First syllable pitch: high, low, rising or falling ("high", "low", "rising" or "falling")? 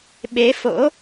rising